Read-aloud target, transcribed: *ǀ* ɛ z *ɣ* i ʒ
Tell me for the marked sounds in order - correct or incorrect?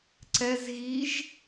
correct, correct

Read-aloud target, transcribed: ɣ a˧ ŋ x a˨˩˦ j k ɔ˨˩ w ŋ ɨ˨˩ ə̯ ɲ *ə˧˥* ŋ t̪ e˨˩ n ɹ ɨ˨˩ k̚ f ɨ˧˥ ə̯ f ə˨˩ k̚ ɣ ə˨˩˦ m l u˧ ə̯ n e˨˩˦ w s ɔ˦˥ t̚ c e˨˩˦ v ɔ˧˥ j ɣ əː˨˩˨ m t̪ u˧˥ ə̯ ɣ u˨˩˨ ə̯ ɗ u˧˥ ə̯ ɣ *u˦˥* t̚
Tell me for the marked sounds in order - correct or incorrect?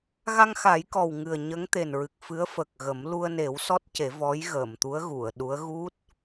correct, correct

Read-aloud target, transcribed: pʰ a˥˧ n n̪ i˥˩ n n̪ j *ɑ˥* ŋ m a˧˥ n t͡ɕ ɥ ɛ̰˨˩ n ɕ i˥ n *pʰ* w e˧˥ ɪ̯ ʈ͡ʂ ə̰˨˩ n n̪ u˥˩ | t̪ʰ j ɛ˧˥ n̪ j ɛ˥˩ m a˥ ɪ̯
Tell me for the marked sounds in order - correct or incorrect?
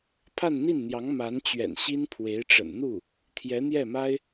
incorrect: ɑ˧˥, correct

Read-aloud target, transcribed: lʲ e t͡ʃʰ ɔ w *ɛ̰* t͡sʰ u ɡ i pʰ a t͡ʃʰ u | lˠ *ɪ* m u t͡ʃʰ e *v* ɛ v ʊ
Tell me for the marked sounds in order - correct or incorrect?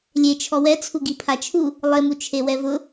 incorrect: ɛ, correct, incorrect: w

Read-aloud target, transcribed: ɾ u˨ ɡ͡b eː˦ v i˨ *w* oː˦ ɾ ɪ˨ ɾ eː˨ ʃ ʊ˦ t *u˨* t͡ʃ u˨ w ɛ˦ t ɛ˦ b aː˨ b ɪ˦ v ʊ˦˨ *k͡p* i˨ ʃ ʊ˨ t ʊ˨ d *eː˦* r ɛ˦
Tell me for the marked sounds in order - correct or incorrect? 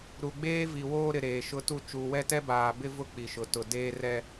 correct, incorrect: u˦, correct, correct

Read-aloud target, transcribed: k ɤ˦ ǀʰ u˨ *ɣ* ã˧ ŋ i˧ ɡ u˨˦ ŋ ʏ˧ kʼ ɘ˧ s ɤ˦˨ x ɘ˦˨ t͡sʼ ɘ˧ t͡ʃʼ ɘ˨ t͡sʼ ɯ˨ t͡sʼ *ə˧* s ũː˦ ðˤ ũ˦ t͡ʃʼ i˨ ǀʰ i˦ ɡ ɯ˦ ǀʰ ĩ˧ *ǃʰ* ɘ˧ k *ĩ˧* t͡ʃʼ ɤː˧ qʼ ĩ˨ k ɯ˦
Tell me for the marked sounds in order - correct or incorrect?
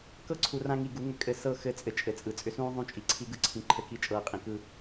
incorrect: r, incorrect: ʏ˧, correct, incorrect: i˧

